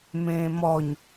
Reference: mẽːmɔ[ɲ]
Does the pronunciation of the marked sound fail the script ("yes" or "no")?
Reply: no